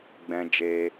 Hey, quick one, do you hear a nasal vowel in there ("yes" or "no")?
yes